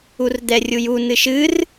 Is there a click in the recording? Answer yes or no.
no